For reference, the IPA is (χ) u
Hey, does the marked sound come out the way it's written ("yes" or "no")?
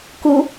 no